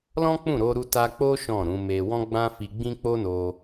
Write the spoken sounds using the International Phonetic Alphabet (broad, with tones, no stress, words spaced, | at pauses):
lɔ̃˦k͡pũ˦˨ɾo˧ɾu˧ ta˧k͡po˦ ʃɔ̃˦˨ɾũ˨˦me˧ wɔ̃˦ɡ͡bã˦fi˧ ɡ͡bĩ˦k͡po˦no˧